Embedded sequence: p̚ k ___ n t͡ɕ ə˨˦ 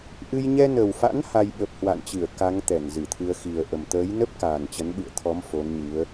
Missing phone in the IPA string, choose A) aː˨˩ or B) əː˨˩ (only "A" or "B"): A